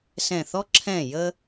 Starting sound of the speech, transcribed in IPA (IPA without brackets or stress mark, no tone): s